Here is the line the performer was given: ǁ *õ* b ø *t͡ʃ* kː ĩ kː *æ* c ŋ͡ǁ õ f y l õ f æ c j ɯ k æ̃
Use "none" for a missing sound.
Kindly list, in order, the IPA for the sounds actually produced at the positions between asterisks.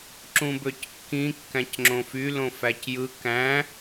ũ, c, æ̃

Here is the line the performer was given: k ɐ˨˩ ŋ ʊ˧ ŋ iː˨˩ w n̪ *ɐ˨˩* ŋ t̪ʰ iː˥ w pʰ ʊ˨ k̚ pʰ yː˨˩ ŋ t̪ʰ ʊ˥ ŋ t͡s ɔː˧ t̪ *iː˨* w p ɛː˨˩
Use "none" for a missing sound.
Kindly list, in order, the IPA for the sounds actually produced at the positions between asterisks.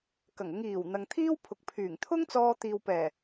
ɐ˨, iː˨

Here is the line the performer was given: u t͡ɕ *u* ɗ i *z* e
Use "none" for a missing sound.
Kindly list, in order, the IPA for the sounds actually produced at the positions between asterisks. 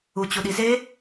u, z

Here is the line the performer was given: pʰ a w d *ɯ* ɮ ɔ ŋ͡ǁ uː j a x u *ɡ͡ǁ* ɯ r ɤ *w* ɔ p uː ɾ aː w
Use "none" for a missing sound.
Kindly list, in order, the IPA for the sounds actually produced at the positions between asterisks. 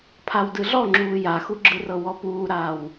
ɯ, ɡ͡ǁ, w

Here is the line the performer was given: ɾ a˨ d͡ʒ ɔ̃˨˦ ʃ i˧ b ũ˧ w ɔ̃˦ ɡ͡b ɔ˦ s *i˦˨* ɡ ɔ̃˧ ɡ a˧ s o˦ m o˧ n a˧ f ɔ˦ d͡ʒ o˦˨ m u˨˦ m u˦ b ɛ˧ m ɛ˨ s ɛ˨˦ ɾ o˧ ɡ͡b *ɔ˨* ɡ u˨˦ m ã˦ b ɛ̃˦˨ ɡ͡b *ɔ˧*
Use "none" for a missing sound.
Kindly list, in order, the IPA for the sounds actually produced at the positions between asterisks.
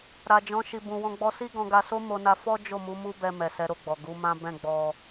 i˦, ɔ˨, ɔ˧

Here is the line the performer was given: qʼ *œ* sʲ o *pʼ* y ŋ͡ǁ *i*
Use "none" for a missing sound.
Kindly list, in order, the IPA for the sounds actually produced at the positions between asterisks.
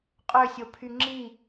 ø, pʰ, i

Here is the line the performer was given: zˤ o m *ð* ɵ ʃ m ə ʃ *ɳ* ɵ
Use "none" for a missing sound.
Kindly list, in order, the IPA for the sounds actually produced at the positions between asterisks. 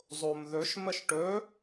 ð, ʈ

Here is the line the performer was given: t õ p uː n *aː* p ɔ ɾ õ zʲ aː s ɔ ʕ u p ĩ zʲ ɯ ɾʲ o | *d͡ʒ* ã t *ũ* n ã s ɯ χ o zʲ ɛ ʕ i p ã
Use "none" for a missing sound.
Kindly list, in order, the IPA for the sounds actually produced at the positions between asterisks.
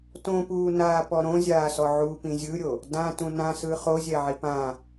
aː, d, ũ

